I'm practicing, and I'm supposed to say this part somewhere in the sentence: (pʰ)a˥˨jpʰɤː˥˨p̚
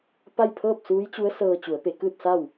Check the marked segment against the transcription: incorrect: p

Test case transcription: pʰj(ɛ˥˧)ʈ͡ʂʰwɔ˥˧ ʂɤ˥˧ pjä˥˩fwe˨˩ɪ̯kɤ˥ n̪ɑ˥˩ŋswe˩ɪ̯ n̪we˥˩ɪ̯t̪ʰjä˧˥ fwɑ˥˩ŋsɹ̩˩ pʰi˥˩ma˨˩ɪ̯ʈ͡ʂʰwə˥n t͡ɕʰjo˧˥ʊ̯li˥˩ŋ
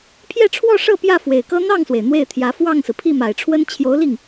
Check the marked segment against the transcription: correct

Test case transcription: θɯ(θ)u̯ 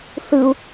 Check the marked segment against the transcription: incorrect: none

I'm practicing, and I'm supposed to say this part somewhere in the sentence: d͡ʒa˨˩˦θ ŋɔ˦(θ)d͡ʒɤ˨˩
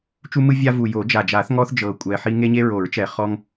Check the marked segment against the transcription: correct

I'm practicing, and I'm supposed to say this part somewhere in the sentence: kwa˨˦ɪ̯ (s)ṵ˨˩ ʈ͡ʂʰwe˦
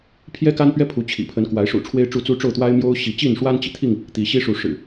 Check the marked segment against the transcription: incorrect: ʂ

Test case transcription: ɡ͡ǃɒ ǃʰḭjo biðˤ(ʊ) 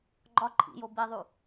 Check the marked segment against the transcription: incorrect: u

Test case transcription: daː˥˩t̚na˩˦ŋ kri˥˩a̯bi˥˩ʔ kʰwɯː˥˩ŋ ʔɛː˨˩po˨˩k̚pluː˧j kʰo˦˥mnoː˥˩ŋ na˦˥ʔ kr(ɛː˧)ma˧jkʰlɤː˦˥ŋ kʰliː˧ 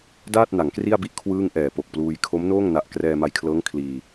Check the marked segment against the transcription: correct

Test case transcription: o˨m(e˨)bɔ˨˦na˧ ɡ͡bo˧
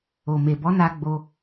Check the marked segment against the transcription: correct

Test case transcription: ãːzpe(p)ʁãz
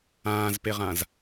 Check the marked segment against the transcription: incorrect: none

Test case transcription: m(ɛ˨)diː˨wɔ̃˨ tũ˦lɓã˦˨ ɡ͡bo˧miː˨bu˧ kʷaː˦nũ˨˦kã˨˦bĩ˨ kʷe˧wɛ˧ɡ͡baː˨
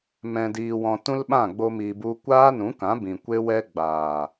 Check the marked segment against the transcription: incorrect: ɛ̃˨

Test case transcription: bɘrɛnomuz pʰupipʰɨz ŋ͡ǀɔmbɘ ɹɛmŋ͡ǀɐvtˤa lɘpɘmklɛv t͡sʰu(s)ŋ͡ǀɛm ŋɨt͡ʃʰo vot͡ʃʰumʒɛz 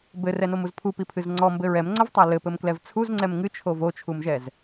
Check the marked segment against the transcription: incorrect: z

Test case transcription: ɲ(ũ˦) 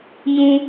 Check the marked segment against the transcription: correct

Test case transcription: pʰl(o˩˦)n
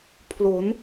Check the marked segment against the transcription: correct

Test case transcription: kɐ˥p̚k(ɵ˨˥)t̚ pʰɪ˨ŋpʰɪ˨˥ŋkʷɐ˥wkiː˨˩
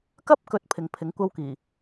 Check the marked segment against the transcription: correct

